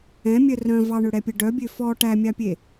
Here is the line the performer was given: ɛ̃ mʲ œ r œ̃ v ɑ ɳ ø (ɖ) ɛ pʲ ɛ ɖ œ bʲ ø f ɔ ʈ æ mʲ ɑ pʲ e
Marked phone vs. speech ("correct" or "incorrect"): incorrect